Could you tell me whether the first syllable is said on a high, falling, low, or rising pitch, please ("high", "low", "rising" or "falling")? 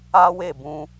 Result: high